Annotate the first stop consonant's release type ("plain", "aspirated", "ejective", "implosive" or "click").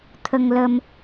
aspirated